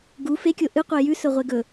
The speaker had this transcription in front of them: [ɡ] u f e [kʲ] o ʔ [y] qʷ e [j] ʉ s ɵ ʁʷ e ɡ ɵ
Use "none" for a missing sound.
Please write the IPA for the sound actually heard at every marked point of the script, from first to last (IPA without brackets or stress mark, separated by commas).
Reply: ɡ, kʲ, ɨ, j